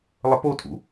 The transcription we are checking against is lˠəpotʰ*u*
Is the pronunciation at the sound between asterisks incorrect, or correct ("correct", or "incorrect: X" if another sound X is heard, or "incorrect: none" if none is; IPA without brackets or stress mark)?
incorrect: ṵ